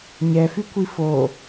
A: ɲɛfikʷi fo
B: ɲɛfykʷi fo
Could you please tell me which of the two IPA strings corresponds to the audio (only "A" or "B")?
B